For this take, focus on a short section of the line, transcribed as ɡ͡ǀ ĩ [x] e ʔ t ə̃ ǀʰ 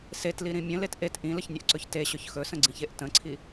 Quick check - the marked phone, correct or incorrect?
incorrect